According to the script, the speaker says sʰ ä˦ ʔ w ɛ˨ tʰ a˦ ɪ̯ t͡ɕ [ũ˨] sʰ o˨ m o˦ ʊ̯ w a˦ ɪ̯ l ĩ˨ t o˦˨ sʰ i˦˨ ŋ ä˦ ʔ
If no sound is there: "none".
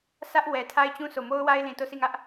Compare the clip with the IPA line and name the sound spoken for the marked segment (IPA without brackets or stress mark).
ũ˦